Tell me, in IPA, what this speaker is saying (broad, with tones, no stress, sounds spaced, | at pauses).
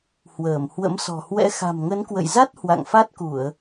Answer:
h w əː˧˩ m h w ə̰˧˥ m s ɔ̤˨˩ h w ɛ̰˧˥ x a̤˨˩ m ŋ ə˨˦ n k w ə̰˧˨ j z a˦˥ t̚ h w a̰˧˨ ŋ f a˦˥ t̚ k u˧˩˨ ə̯